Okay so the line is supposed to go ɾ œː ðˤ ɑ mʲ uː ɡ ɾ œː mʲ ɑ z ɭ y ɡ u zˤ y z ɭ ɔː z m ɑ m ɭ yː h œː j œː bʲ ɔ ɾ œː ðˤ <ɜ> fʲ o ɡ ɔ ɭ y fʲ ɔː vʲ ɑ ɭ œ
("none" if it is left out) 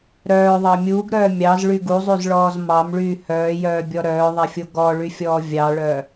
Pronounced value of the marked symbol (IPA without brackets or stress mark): ɛ